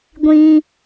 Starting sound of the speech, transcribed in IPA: ɡʷ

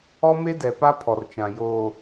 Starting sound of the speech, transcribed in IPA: ɔ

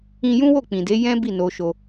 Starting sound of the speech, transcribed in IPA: ĩ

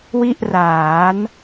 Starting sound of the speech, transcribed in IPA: w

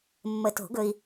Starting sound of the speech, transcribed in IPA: mː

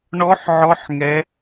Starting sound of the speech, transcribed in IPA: ɳ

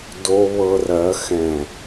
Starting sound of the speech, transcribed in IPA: d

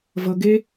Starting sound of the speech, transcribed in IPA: v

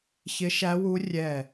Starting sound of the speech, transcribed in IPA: ç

